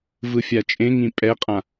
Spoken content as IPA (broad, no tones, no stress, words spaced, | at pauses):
vɯfʲat͡ʃʼẽŋĩ pʼɛqʼã